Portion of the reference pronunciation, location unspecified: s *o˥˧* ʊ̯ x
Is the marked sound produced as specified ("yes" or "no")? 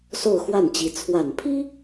yes